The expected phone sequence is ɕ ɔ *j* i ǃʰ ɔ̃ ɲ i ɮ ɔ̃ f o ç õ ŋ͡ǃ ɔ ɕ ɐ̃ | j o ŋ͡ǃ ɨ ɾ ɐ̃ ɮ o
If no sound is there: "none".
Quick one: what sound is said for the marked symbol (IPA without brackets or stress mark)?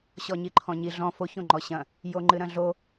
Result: ɲ